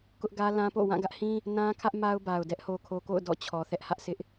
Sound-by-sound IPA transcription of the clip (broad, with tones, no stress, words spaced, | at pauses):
kʊ˦ʔɡä˦lã˦po̰˦˨ wã˦˨ɡä˦ʔhĩ˦ | nã˦kʰä˦ʔ ma˦ʊ̯ba˨ʊ̯dɛ˦ʔ ho˨kʰo˨ko̰˦˨ʊ̯ dɔ̰˦˨t͡ɕʰɔ˨θɛ˦ʔ hä˦ʔsɪ˦ʔ